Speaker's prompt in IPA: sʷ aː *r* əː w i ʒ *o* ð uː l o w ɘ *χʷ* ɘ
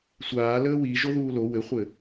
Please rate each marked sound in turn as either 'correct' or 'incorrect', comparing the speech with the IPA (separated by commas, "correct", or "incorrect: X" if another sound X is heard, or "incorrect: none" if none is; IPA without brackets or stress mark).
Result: incorrect: l, correct, correct